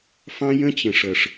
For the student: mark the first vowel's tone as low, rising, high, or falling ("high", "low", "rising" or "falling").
high